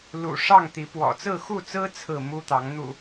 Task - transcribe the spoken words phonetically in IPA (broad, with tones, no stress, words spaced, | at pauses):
lṵ˨˩ ʂɑ˥˨ŋt̪i˨˦ pwɔ̰˨˩t͡sɹ̩˥˨xu˥˨t͡sɹ̩˦ t͡sʰɹ̩˥˨mu˦t̪ɑ˨˦ŋ n̪ṵ˨˩